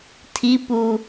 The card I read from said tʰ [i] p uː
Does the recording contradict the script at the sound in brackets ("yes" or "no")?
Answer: no